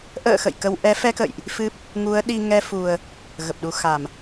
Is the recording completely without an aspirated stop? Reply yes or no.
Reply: yes